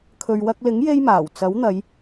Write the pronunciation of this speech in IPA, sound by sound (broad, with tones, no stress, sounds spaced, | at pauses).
kʰ ɵ˨ ɥ w ɐ˧ k̚ l ɪ˨˥ ŋ j e˥ j m aː˨˩ w t͡s ɐ˨˥ w n̪ ɐ˨˧ j